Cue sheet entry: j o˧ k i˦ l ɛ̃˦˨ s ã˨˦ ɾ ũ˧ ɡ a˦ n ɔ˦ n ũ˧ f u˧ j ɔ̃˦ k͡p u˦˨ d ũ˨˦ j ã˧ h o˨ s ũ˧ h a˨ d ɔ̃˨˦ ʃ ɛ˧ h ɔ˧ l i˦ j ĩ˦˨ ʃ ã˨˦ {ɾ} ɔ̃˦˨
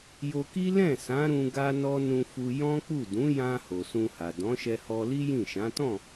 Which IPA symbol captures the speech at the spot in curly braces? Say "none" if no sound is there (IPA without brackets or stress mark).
t